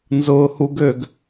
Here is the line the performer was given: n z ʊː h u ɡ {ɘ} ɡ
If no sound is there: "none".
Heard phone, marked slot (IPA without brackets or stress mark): ø